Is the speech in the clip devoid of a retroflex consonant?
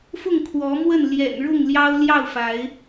no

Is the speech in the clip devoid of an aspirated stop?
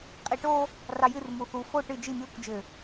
yes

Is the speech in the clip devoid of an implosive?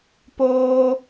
yes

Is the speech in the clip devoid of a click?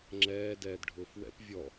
no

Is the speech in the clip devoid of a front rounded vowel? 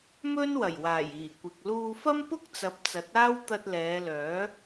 no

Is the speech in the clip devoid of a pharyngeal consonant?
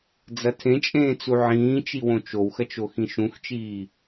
no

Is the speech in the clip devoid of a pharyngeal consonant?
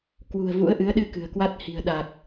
yes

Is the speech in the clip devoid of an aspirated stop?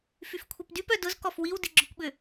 no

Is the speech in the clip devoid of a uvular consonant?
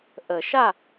yes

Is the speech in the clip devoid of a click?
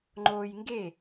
no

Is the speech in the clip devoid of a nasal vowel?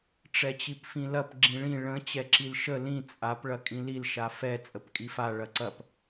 no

